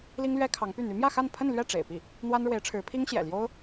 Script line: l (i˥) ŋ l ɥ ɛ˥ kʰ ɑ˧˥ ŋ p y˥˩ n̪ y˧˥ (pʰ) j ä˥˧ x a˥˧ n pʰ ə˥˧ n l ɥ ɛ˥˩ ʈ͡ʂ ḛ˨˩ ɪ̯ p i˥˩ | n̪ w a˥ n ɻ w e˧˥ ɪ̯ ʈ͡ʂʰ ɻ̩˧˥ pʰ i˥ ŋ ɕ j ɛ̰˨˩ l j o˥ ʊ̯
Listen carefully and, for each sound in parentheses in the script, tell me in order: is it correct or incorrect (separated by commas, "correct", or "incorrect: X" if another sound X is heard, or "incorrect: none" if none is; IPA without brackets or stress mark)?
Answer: correct, incorrect: m